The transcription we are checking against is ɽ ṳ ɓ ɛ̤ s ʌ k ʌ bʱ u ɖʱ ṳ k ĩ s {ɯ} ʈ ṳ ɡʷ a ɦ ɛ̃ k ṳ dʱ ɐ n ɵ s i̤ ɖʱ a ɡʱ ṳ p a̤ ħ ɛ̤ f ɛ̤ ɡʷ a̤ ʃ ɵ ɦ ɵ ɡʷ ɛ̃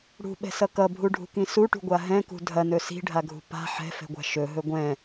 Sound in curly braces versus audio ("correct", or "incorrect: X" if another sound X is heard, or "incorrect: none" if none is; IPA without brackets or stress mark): incorrect: u